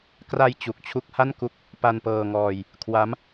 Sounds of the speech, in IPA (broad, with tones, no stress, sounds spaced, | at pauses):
k r a˧ j t͡ɕ u˨˩ k̚ t͡ɕʰ u˦˥ k̚ h a˥˩ n k u˦˥ k̚ | p a˧ n p ɤː˧ ŋ ɔː˧ j | kʰ w a˦˥ m